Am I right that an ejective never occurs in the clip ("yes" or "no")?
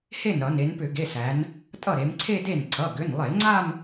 no